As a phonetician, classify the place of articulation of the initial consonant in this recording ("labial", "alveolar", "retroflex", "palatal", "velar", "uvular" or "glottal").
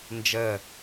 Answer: alveolar